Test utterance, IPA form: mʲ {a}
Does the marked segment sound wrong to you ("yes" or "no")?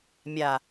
no